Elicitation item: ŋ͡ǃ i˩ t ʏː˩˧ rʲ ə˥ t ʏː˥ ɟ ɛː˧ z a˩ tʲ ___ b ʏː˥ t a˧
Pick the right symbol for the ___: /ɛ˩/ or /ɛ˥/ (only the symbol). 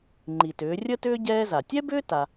ɛ˥